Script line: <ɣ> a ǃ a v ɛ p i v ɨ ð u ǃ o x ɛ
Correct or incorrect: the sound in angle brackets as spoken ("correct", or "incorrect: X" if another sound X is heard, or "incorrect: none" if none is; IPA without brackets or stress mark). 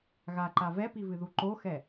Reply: correct